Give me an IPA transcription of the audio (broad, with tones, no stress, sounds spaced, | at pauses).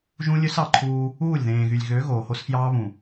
ʒ ũ˦ lʲ ø˦ s ɑ˨ ǃʰ uː˦ | uː˦˨ lʲ ð ẽː˨ ɣ y˨ lʲ ɣ ø˨˦ ɣ oː˨ h o˦ s f j ɑː˦ β ũ˨